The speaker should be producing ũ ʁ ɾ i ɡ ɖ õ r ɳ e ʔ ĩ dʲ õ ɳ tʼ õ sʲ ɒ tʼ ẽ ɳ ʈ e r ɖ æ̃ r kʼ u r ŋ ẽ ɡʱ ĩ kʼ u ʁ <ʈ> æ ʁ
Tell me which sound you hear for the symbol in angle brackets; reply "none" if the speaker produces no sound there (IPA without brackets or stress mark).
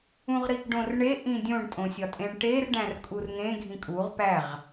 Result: p